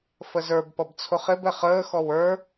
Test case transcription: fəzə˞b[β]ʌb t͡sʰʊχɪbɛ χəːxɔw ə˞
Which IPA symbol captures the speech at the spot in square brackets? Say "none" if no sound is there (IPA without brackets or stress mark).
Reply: p